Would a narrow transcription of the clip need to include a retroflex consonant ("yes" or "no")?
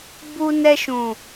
no